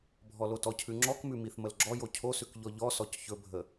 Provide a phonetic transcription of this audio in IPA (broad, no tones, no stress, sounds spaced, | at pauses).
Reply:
bʱ ɔ l o t ɔ cʰ ʉ ŋ͡ǁ ɔ k m ʉ m i θ m ə l ɡ͡ǁ ɔ j o cʰ o s ʉ k ʎ ɔ ʎ ɔ s ɔ c ç ɵ bʱ ə